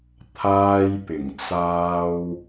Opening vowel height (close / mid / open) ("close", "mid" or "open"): open